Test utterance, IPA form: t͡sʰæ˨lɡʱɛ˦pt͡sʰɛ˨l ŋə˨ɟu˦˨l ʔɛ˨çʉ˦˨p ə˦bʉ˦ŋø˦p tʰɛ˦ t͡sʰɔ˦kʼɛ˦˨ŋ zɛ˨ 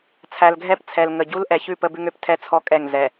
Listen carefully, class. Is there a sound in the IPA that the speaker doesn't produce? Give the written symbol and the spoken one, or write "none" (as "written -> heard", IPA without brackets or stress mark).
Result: u˦˨ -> u˦